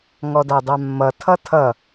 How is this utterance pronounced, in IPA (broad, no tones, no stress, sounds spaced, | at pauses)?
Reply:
ŋ ɔ d a dˤ a mː ʌ tʰ ʌ tʰ ʌ